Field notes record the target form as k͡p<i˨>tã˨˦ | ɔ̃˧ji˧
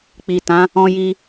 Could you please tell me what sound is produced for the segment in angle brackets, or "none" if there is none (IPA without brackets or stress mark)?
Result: i˨